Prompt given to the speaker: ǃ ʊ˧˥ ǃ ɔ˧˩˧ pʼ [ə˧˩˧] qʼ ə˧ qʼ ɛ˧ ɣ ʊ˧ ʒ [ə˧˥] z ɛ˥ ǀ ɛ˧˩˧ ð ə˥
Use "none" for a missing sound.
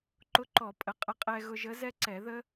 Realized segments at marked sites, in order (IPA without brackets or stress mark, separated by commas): ə˩˧˩, ə˧˥